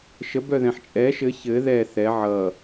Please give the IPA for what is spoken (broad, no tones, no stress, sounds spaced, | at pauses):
ʃ ə b œ ð ɛ̃ ħ t͡ʃʼ ɛ ʃ ɘ ç ɘ ð ɛ θ ɛ ʕ ʌ